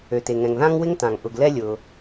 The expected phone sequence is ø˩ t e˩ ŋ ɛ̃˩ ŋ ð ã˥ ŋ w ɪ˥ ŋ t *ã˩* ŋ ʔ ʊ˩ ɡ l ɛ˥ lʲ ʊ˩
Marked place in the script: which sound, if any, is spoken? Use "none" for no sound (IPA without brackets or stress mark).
ã˩